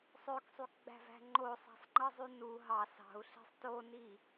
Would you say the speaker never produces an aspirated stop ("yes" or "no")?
yes